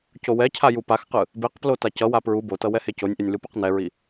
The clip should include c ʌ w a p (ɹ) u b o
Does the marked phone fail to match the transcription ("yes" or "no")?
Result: no